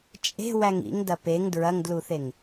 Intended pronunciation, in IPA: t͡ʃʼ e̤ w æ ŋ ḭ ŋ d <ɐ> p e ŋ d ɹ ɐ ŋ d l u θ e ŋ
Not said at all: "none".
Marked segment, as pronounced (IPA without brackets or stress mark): ɐ